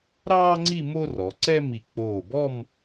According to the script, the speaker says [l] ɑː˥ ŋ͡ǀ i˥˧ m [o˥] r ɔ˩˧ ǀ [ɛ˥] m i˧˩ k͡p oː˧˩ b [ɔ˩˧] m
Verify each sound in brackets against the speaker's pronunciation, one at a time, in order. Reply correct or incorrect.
incorrect, correct, correct, incorrect

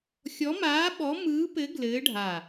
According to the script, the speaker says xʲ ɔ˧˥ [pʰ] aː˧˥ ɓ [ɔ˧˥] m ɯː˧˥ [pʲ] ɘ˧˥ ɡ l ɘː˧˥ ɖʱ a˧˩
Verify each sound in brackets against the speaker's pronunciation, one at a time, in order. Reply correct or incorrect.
incorrect, correct, incorrect

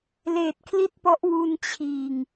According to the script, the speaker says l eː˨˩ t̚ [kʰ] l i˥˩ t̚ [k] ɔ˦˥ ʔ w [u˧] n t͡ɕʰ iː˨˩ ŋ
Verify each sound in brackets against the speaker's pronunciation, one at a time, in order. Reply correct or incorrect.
correct, incorrect, correct

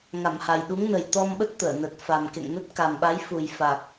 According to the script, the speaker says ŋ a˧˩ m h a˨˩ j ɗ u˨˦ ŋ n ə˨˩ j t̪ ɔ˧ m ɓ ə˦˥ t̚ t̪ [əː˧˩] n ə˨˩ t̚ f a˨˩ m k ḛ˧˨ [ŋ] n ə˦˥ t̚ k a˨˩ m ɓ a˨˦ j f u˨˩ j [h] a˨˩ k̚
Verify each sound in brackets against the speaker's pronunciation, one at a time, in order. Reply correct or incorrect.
correct, correct, incorrect

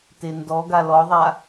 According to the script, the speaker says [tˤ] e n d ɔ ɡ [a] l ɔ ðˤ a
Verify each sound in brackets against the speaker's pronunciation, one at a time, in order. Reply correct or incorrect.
incorrect, correct

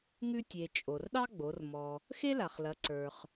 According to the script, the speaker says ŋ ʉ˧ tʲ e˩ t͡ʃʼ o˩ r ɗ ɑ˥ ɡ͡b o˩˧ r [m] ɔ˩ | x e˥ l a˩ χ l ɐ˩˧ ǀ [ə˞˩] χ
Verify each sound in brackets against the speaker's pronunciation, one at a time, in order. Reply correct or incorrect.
correct, correct

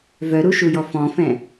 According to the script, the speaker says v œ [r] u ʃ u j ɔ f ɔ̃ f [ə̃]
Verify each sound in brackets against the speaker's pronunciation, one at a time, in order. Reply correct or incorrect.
incorrect, incorrect

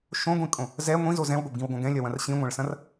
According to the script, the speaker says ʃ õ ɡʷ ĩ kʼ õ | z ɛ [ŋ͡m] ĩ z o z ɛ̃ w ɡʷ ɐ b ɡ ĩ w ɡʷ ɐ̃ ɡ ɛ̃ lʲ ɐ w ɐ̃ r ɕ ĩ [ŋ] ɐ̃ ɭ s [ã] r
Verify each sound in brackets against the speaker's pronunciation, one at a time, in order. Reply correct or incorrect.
incorrect, incorrect, incorrect

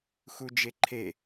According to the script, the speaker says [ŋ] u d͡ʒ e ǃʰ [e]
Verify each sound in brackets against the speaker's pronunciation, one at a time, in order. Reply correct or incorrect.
incorrect, correct

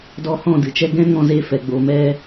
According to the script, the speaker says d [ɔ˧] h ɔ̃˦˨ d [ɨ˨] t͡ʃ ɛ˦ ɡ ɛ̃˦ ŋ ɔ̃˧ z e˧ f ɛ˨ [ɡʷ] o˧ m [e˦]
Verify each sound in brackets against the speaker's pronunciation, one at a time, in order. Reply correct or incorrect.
correct, correct, incorrect, incorrect

